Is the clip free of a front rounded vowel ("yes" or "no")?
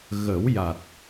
yes